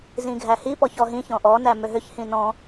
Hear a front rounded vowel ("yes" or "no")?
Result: yes